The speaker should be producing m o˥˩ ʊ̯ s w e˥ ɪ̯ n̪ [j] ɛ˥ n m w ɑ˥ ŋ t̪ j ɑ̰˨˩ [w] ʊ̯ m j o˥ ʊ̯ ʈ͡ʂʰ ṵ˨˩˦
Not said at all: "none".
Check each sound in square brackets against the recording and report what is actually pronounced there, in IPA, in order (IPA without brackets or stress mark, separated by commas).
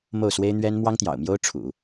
ɥ, none